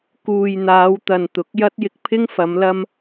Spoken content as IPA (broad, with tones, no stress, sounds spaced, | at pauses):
k uː˨ j n̪ aː˨˧ w t̪ ɐ˨ n t̪ ʊ˨˥ k̚ j ɐ˥ t̚ j ɪ˧ k̚ pʰ ɪ˥ ŋ f ɐ˨˧ m l ɐ˥ m